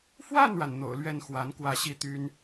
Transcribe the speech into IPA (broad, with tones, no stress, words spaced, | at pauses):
fwa˥˩nɻa˩n n̪o̰˨˩ʊ̯lɥɛ˥˩nxwa˧˥n kwä˥˩ɕi˥t̪y˥n